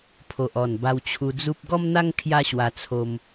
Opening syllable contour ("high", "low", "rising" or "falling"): low